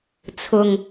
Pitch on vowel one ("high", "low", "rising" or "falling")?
low